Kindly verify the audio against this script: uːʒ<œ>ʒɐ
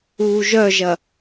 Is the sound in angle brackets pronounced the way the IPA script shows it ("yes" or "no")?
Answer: yes